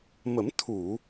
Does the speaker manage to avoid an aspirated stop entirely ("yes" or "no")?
no